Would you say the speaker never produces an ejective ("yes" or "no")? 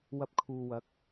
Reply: yes